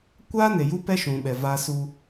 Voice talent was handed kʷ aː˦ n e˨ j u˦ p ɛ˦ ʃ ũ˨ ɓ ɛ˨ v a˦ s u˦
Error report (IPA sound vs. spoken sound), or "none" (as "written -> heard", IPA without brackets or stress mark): none